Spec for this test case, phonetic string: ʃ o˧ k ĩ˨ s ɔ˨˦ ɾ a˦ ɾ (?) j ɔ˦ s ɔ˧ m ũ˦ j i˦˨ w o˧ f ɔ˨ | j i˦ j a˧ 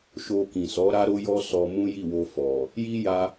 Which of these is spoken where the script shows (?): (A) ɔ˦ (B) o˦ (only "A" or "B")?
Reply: B